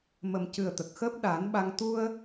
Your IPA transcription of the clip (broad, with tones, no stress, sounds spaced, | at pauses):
m ə˨˩ m c ɨ˨˩ ə̯ t̪ ə˨˩ k̚ x əː˦˥ p̚ ɗ aː˨˩˦ n ɓ a˧ ŋ t̪ u˧ ə̯